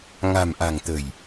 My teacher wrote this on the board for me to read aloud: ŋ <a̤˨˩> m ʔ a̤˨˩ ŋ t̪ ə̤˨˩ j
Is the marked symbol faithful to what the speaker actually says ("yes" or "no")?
yes